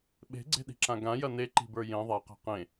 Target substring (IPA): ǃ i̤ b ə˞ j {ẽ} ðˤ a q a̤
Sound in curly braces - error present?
no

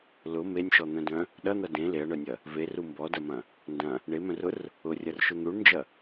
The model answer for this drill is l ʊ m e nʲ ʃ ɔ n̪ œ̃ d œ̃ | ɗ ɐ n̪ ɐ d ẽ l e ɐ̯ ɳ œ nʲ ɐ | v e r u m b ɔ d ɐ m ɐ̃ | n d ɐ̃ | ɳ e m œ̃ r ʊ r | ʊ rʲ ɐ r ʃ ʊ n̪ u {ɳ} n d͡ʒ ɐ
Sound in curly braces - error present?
no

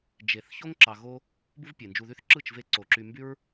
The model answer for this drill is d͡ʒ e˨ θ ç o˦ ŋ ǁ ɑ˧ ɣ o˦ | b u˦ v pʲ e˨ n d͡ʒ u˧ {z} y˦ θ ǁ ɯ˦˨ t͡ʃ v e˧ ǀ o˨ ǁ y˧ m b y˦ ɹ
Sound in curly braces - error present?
yes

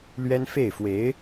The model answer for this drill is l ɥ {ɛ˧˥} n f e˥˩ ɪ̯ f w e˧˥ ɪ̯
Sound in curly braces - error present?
yes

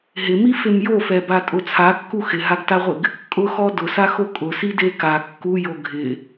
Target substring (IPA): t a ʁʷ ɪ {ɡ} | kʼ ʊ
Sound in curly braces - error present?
no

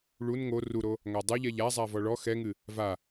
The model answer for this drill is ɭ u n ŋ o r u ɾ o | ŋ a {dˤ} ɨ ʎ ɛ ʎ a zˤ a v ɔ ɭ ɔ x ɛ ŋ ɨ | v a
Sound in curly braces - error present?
no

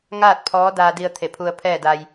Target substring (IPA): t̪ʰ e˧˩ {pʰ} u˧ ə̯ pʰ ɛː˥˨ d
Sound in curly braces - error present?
no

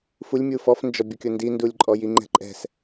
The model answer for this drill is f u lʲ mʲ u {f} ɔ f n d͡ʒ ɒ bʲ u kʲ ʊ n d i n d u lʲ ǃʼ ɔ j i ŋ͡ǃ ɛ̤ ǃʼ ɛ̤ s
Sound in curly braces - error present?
no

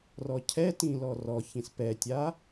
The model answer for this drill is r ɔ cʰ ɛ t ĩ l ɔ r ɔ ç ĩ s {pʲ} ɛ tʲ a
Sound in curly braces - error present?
yes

